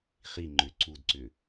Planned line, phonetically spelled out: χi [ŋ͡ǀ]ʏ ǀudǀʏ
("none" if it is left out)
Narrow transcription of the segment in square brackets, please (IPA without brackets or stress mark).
ŋ͡ǃ